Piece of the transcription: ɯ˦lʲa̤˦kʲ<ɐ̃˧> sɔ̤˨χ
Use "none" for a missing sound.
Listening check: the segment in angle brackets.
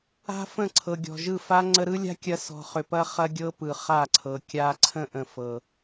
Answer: ɐ˧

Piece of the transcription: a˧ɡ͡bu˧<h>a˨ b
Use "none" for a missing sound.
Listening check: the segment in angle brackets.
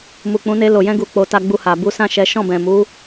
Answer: h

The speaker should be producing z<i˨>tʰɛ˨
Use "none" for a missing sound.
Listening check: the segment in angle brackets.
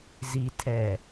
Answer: i˨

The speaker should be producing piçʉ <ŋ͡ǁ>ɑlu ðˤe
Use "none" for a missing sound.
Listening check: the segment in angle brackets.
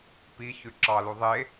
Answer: ǁ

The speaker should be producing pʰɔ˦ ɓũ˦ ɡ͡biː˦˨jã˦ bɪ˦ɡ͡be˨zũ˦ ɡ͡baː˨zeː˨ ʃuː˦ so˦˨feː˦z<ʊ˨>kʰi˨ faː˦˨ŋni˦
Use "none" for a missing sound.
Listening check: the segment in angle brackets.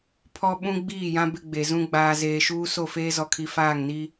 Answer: ɔ˨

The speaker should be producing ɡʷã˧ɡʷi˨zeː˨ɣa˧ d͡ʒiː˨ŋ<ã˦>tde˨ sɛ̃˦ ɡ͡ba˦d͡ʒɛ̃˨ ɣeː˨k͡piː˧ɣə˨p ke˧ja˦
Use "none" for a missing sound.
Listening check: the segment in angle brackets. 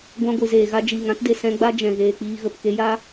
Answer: ã˦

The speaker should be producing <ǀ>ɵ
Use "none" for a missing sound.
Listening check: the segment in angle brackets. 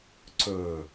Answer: ǀ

